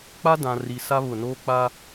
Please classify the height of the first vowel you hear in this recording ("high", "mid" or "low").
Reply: low